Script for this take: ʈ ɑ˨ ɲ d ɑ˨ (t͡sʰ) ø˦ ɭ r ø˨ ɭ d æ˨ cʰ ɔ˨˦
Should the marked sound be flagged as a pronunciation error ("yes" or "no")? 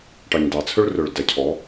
no